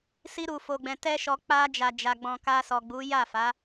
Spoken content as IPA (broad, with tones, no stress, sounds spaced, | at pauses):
s i˧ ɾ u˨ f o˨ ɡ͡b ɛ̃˨ t ɛ˧ ʃ ɔ˨ k͡p a˧ d͡ʒ a˨ d͡ʒ a˨ ɡ͡b ɔ̃˨ k a˧ s ɔ˨ ɡ͡b u˨˦ j a˦˨ f a˨˦